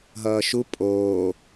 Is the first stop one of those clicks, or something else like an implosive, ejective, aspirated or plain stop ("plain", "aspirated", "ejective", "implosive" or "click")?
ejective